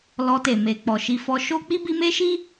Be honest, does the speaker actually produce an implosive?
no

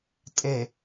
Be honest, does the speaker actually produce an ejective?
yes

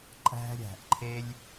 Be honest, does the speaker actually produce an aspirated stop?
yes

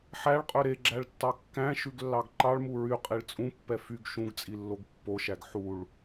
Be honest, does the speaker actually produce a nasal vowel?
yes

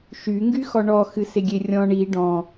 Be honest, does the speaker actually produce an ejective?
no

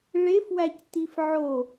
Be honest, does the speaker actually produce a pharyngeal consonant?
yes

